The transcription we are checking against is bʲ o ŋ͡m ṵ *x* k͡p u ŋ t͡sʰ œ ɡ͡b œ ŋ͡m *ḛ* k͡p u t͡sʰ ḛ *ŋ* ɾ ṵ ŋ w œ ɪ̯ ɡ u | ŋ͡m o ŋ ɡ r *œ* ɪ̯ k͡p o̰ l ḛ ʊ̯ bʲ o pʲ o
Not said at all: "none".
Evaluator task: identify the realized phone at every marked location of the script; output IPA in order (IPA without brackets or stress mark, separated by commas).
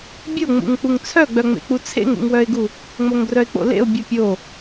ŋ, ḛ, ŋ, œ